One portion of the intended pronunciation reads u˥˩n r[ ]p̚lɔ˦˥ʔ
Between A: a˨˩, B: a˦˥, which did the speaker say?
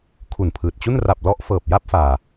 A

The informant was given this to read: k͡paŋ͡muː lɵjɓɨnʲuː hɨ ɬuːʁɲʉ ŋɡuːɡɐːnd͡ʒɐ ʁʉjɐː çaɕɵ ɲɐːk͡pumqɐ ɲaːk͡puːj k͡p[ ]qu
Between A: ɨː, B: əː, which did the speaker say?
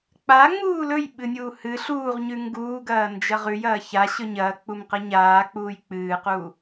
A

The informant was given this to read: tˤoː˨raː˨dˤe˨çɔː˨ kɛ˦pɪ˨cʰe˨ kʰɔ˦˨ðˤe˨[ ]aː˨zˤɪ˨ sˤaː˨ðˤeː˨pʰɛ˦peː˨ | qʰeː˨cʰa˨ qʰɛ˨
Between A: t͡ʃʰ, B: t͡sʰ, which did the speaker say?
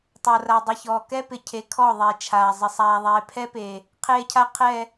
A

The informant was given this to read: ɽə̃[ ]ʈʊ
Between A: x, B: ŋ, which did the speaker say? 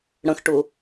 A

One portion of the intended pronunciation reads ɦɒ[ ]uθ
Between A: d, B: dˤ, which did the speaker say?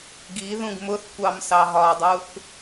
B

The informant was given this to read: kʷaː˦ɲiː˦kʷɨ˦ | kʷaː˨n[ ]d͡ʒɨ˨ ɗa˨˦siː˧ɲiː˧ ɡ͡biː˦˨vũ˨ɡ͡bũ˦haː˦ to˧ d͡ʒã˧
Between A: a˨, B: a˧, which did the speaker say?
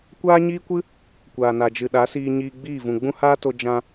A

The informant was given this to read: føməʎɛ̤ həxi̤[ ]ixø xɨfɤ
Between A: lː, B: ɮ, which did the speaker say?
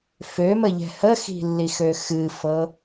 A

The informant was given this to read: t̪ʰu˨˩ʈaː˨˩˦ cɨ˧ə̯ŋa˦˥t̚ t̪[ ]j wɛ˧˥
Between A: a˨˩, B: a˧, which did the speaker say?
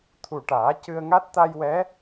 B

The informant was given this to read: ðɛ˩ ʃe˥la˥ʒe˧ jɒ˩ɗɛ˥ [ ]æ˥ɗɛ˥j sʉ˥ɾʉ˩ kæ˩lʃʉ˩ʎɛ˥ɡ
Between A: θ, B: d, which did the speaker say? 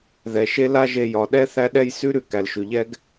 A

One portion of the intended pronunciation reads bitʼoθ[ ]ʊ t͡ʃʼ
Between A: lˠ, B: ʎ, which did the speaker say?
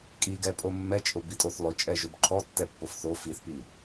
A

